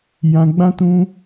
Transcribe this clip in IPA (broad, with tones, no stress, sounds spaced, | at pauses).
j ã˧ ɡ͡b ã˦ t ũ˧